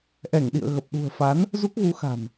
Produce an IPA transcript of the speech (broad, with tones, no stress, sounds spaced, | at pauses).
ʔ ɛ˧˩ ŋ ɗ ḭ˧˨ ə̯ ɣ ə˨˩ p̚ ɗ ṳ˨˩ ə̯ f a˨˦ n | z u˦˥ k̚ ɣ u˨˦ x a̤˨˩ n